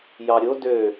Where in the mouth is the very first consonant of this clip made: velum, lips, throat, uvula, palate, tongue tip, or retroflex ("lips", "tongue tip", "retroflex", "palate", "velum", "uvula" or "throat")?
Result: palate